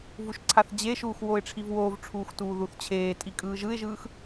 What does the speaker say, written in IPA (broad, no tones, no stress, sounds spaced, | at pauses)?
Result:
v u ʃ ǀʰ a θ d͡ʑ e ʃ uː x w o ɪ̯ ʈ͡ʂʰ i v w oː v ʈ͡ʂʰ uː x t uː ð u θ t͡ɕʰ eː tʼ i kʼ ɯː ʒ ɯ ɪ̯ ʒ ɯː x